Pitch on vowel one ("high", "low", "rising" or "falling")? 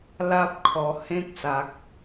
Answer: high